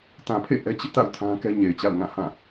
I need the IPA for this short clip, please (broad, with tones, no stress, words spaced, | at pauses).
tã˨pʰḛ˦˨ ʔɛ˦t͡ɕɪ˦ʔta̰˦˨ʊ̯ tʰã˦kɛ˦ɲe˨ɪ̯t͡ɕa̰˦˨ʊ̯ ŋã˦˨ hã˦˨